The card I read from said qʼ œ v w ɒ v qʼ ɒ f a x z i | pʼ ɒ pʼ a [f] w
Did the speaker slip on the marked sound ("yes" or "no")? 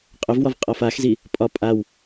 yes